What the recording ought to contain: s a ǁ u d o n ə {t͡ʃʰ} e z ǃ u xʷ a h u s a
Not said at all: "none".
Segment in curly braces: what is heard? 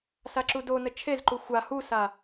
t͡ʃʰ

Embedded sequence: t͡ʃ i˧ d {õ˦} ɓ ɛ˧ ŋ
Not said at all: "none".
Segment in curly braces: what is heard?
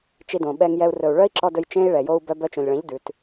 õ˨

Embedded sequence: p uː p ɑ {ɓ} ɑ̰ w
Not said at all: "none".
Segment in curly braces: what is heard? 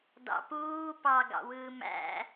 ɡ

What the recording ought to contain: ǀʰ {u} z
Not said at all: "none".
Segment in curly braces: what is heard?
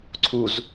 u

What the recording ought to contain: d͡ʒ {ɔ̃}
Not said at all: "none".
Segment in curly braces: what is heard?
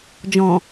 ɔ̃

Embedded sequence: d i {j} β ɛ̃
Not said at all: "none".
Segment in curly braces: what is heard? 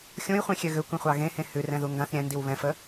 w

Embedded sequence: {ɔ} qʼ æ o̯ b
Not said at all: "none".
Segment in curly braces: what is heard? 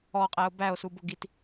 ɔ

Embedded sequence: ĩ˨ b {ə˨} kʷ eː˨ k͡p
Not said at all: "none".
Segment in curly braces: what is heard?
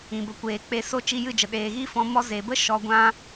ə˨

